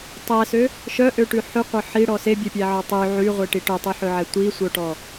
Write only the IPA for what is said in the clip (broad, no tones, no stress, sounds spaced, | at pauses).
tˤ æ s ø | ʃ œ ʔ ø ʈ ʉ ħ ʉ qʷ œ ħ i ɽ ɔ s e bʲ e pʲ æ ʕ ɔ tˤ y ʕ y ʁʷ e ʈ i ʈ œ tˤ y ħ ø ʕ ɛ tʷ i sʷ œ ʈ ɔ